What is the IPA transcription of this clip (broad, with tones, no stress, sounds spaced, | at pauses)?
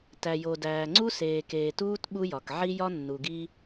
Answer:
t æ˨ j o˨ d æː˨ ŋ͡ǀ u˦ s eː˨ k eː˨ t uː˦ t ɓ u˦ j ɒ˨ k ʕ i˦ j ɒ˦ nː u˨ ɡ i˦